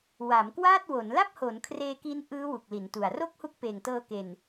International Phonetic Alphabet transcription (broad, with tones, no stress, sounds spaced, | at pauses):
w a˩˦ m k w aː˥˩ t̚ w o˩˦ n l a˥˩ p̚ h o˩˦ n kʰ r eː˧ k i˦˥ n ʔ ɯː˦˥ w u˨˩ k̚ l i˩˦ n t u˨˩ a̯ r o˥˩ k̚ h u˦˥ k̚ p eː˨˩ ŋ t ɤː˧ k e˨˩ n